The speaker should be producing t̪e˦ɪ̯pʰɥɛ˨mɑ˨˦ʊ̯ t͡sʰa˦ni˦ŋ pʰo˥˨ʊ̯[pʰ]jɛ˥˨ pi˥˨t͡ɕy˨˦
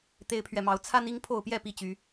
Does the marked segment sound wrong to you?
yes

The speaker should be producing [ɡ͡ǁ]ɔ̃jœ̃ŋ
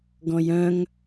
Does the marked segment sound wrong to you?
yes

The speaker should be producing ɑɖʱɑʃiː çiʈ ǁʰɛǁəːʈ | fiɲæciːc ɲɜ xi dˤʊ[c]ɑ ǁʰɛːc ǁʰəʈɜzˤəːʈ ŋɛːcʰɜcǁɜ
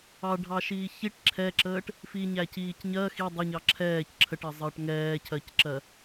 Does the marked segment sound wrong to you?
yes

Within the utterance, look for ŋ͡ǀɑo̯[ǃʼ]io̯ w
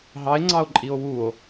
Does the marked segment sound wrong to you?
no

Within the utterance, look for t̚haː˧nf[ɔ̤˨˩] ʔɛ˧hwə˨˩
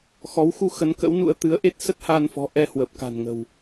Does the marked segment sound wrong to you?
no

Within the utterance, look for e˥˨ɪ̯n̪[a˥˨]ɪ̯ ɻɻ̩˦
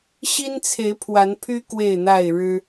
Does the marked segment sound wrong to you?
no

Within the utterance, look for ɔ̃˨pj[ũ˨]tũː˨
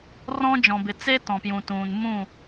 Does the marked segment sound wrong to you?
no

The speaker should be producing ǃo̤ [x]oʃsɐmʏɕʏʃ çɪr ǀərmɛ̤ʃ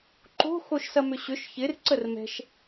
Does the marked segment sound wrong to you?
no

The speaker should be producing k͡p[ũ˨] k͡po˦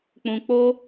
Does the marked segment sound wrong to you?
yes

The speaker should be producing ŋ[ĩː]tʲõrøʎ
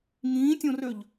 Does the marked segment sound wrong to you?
no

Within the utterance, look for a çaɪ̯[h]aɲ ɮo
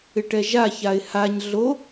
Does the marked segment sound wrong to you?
no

